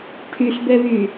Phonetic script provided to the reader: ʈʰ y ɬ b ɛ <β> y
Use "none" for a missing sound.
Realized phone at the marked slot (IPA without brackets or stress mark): β